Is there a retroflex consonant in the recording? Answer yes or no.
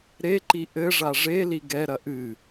yes